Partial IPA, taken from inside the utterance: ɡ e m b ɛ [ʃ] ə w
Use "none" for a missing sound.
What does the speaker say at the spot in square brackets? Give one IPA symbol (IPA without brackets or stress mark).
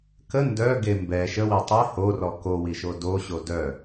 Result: ʃ